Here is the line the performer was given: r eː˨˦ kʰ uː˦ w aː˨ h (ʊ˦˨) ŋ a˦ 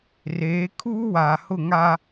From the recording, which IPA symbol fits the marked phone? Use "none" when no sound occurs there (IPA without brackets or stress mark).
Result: ʊ˦˨